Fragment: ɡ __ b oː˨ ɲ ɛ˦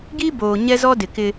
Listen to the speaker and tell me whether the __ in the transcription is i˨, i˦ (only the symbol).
i˦